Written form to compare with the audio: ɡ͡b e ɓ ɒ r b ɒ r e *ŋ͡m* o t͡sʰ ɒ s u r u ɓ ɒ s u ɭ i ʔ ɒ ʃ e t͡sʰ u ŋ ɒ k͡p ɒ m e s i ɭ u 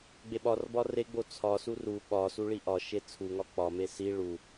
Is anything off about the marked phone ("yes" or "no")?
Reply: yes